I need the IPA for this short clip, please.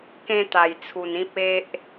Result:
k ẽ˦ t̪ a˧ j t͡sʰ u˧ n ĩ˦ p̚ e˦ ʔ

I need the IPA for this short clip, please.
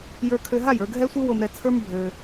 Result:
j ə˞˧ kʰ ø˧ ɦ a˦˨ j ə˞˧ ɡʱ ɛ˦ sʷ ɯ˦ w o˧ m ɾ ɛ˧ t͡sʰ ə˞˦ m bʱ ø˧

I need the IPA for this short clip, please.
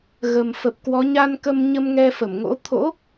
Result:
ɣ ə˨˩ m f ə˨˩ p̚ k w ɔ˨˦ ɲ a˧ n k ə˧ m ɲ ə˧ m ŋ ɛ˧ f ə˧˩ m ŋ o̰˧˥ t̪ʰ o̰˧˥

